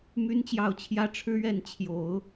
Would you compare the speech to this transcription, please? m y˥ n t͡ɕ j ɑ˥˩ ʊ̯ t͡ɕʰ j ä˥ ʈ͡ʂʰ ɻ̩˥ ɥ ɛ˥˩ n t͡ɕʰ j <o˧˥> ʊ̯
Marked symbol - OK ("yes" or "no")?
no